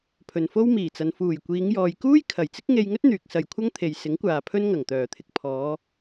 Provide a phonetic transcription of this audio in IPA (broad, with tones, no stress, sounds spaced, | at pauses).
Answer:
pʰ ɵ˨ n f o˥ w m iː˨˩ t͡s ɐ˨ n f uː˨˩ j kʷ iː˨˧ ŋ j ɔː˨ j k uː˥ j kʰ ɐ˨˩ j t͡s ɪ˥ k̚ ŋ e˧ j ŋ ɵ˥ t̚ n̪ yː˨ k̚ s ɐ˨ j kʷʰ ɐ˥ ŋ t̪ʰ e˨ j s ɪ˨˥ ŋ kʷ aː˨ pʰ ɵ˥ n ŋ ɐ˨˩ ŋ t̪ œː˨˩ t̪ʰ ɪ˨ k̚ pʰ ɔː˨˧